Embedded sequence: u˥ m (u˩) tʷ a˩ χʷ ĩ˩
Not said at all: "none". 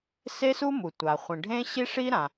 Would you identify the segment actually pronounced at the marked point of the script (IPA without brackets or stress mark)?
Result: u˩